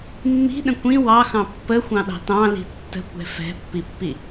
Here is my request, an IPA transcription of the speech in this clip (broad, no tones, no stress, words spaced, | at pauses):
mːi̤ɗə̃ kʷĩ wɑxɑ̃ pːəxʷɑ̃ɗɑ̤ tɑ̃li̤ tːə̤kʷɛ̤ fɛ̤pːipːi